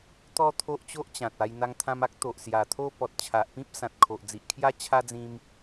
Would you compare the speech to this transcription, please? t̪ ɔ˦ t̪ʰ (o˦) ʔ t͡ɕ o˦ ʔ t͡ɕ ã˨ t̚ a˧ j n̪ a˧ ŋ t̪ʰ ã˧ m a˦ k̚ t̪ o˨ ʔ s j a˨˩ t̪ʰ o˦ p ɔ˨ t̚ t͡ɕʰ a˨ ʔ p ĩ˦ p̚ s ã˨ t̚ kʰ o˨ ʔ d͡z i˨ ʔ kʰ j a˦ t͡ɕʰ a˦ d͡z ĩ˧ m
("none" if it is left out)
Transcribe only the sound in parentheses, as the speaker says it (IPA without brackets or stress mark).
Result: o˦